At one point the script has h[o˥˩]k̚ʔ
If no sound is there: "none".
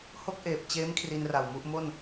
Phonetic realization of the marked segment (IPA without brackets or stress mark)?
o˥˩